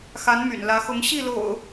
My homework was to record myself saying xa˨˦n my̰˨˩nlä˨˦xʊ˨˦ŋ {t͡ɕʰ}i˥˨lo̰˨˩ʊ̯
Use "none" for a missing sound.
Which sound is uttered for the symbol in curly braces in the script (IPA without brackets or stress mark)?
ɕ